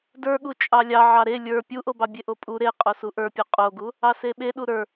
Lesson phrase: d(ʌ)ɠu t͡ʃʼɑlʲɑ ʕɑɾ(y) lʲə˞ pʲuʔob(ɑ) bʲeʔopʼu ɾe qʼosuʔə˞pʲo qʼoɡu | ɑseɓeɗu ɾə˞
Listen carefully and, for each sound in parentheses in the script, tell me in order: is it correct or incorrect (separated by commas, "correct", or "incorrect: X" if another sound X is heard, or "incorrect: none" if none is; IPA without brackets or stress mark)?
incorrect: ə˞, incorrect: e, correct